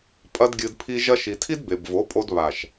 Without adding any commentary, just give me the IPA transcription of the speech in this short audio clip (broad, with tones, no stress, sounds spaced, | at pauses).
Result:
pʼ ɐ˦ d ɡʲ ɨ˧ d pʰ i˧ ʒ ɐ˧ ʃ i˨ tʰ i˦ d b e˨ b v o˨˦ pʼ o˧ d β a˨ ʃ